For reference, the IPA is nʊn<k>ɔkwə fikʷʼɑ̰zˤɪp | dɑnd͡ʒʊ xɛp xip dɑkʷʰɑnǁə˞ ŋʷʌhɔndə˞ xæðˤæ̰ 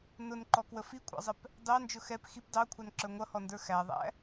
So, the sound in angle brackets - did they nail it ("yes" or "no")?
no